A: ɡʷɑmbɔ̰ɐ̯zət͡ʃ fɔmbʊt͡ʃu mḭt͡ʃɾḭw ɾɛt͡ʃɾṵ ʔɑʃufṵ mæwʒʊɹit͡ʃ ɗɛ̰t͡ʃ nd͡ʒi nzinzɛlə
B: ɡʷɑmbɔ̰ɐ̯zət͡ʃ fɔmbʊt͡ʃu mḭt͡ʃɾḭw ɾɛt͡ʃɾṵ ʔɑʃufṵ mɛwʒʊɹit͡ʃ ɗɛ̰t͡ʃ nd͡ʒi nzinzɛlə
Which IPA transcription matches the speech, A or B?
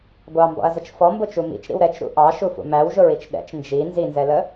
A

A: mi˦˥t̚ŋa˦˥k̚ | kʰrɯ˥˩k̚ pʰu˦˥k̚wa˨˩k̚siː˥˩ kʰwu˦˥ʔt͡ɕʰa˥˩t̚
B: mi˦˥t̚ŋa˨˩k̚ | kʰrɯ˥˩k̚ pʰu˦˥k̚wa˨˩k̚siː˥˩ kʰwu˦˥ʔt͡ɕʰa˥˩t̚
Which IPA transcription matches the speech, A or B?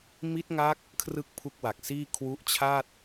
A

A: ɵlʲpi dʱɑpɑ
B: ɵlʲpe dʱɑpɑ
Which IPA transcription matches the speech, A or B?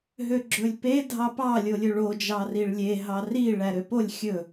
B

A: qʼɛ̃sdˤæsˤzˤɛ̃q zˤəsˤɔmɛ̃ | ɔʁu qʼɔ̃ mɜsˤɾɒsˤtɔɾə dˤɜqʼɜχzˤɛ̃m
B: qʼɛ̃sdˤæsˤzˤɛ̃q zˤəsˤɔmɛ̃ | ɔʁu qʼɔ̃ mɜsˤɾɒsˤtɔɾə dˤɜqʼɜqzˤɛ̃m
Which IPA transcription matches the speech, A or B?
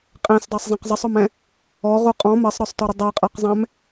B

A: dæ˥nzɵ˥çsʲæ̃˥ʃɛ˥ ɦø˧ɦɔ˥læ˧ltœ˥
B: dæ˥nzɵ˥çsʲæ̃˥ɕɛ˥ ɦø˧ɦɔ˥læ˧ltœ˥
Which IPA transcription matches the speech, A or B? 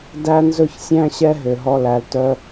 B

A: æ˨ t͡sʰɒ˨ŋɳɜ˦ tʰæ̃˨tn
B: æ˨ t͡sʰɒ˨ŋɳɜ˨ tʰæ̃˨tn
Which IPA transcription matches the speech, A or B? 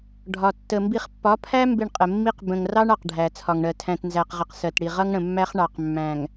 B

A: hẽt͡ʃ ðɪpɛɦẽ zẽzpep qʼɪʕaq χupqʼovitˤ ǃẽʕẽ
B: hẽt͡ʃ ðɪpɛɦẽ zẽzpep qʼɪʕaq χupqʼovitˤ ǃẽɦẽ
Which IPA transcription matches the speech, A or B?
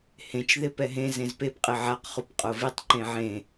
A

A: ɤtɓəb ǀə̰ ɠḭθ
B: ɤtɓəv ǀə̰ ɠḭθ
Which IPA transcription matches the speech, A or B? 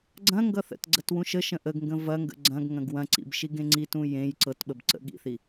A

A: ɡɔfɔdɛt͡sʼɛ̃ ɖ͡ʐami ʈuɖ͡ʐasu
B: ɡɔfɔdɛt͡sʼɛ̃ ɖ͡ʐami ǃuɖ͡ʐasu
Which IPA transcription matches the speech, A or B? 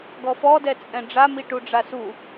A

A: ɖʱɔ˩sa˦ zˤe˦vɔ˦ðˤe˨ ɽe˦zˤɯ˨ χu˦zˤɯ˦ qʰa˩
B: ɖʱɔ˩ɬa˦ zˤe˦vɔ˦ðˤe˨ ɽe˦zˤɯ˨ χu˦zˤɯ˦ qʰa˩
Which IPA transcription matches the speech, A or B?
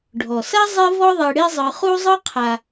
A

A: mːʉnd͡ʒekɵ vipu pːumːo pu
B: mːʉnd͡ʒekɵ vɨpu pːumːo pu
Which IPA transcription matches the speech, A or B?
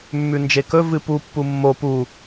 B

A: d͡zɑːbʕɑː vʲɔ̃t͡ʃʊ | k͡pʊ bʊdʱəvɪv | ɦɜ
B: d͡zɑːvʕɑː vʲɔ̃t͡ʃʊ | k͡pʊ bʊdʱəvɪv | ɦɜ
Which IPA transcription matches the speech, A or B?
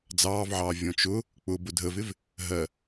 B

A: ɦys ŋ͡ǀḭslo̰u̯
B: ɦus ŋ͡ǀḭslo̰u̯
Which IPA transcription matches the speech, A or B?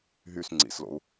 A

